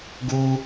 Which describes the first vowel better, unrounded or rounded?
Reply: rounded